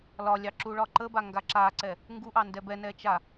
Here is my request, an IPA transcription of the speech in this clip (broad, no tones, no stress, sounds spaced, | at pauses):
l ɒ lʲ ɑ ǁ u ɭ ɒ ǃ ə b a ŋ ɡ a ǁ a ǀ ɛ | ŋ ɡ u ʔ ɑ n d ɛ b ɛ n ɛ t͡ʃ a